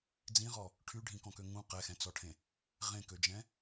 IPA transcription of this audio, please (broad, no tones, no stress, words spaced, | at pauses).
d͡zĩʁɔ | ʈʰyɖʱĩkɔ̃kø ŋũ qɛxɛ̃t͡sɔʈʰẽ | ʁẽkød͡ʒɛ̃